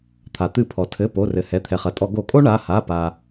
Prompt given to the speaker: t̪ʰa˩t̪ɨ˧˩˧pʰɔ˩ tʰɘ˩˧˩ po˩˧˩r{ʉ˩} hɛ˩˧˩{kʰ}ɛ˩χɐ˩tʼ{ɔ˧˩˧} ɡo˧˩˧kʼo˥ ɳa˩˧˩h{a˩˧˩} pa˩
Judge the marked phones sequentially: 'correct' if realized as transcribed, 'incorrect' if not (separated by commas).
incorrect, incorrect, correct, correct